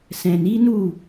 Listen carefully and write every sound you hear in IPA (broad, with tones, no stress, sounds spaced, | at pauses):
s ɛ̃˨ n i˨˦ n u˦˨